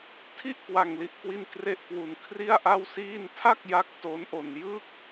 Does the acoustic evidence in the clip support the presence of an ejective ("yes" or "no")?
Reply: no